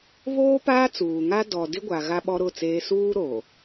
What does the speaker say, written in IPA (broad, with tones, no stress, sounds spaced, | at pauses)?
β oː˦ p aː˦ t͡s uː˨ ŋ a˦ d ɔ˨ d ɪ˦ ɡʷ a˨ ɣ a˦ ɓ ɔ˦ ɾ ʊ˦˨ t͡s eː˦ s uː˦ ɾ o˨